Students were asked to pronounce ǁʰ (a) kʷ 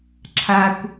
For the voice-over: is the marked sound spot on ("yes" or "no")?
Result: yes